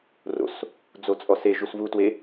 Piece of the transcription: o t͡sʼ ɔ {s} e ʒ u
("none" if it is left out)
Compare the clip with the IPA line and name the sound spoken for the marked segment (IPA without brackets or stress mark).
s